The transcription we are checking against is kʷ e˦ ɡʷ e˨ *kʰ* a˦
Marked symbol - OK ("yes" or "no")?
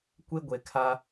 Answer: yes